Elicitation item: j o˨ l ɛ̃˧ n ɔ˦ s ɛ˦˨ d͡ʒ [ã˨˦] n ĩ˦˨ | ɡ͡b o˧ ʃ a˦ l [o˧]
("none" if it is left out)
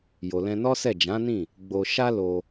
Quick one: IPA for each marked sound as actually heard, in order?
ã˨˦, o˧

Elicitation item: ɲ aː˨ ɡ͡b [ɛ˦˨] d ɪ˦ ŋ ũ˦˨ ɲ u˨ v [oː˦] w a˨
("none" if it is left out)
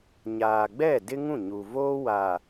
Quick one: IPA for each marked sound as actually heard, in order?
ɛ˦˨, oː˦

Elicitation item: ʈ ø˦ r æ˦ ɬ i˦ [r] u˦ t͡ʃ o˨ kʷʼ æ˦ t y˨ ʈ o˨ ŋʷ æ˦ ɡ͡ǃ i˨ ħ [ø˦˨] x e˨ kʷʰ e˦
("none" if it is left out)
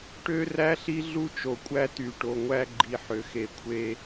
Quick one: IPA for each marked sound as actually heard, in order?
ɮ, ø˨

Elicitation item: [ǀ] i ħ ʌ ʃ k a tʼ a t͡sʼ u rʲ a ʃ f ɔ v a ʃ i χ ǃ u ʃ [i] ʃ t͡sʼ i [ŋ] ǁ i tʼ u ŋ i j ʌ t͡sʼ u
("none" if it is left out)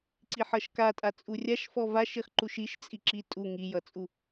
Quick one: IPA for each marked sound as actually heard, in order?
ǀ, i, none

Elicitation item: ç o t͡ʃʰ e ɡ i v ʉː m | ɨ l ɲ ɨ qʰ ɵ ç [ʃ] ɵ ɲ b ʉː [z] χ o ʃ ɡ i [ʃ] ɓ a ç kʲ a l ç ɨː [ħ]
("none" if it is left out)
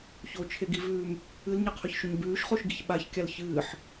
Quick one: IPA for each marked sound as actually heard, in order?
ʃ, ʃ, ç, ħ

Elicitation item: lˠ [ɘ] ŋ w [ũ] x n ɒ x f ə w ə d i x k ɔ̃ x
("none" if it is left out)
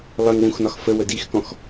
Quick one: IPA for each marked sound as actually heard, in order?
ɘ, ũ

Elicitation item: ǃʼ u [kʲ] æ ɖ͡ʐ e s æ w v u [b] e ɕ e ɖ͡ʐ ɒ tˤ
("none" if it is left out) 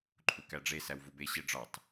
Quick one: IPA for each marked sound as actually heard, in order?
k, b

